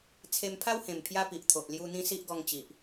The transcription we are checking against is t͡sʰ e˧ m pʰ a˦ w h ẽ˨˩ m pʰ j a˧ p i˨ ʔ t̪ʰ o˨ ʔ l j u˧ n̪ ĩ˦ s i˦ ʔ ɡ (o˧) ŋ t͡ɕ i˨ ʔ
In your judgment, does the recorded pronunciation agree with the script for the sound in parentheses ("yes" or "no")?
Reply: no